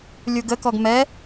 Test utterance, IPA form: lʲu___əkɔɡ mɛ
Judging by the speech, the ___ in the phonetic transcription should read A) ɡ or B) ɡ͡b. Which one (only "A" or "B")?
A